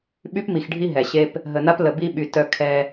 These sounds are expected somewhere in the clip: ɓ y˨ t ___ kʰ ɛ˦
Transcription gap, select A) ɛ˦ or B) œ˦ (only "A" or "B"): B